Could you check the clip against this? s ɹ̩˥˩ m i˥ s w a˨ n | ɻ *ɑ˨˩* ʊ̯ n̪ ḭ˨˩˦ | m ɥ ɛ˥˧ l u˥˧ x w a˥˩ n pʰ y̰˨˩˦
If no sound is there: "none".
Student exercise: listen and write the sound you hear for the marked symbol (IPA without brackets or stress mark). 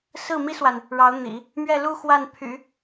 ɑ˧˥